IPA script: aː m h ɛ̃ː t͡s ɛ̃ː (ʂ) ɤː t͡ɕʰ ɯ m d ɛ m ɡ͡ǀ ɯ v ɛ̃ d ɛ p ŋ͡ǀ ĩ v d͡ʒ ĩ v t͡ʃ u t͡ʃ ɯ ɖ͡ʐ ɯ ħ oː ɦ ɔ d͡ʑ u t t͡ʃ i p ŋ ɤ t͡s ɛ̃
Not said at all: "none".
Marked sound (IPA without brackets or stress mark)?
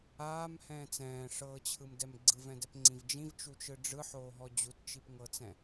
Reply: ʂ